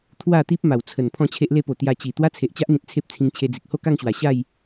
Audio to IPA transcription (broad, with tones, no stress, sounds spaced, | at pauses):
t̪ʰ w a˥˧ t̪ i˦ p̚ m a˨˩ w t͡sʰ ə˨˩ n pʰ ɔ̃˥˧ t͡ɕʰ e˦ ʔ l e˦ p o˨˩ t̪ j a˧ t͡ɕ i˨˩ t̪ w a˦ t͡sʰ e˨ ʔ t͡ɕ a˦ ʔ n̪ ĩ˨ t̚ t͡sʰ e˦ p̚ t͡sʰ ĩ˧ ŋ t͡ɕʰ e˧ d͡z i˨ k̚ h o˥˧ k a˥˧ ŋ ɕ w a˨˩ ɕ a˥˧ j